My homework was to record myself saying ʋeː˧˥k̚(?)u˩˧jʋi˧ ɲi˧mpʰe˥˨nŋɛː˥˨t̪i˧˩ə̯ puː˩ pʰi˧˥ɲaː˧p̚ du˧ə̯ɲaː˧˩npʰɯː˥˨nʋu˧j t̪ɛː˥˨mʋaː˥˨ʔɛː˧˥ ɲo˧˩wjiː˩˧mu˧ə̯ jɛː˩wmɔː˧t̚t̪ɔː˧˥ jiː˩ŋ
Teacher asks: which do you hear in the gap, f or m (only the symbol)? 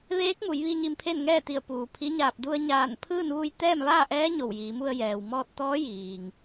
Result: m